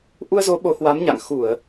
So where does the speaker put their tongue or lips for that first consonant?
throat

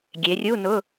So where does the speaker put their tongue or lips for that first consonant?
velum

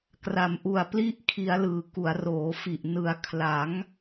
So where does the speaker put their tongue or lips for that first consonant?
velum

